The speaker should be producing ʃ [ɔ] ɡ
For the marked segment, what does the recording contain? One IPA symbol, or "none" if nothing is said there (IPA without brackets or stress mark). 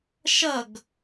ʌ